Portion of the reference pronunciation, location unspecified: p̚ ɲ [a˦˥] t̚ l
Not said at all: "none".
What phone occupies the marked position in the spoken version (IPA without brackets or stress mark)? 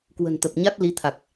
a˦˥